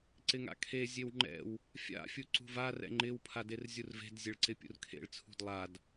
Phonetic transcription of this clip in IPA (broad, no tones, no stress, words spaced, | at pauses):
ǀɪŋa̰kʰe zʲewŋ͡ǃɛ̰w | fʲa̰ fʲuǀṳva rɛ̰ŋ͡ǃɪw pʰaderzʲurve̤d zʲeɭǀɪpʲṵrkʰḛɭ t͡sʰṳdlˠad